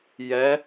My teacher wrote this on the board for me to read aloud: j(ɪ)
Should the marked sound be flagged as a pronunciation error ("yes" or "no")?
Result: yes